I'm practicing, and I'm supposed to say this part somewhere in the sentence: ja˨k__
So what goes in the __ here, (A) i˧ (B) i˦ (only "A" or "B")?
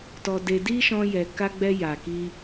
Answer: A